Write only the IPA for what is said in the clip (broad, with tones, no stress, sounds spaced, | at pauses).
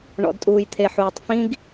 ɳ ɔ̰˨ d tʼ uː˨ j t̪ʰ e˨ ħ uː˨ tˤ f ĩ˦ ɡ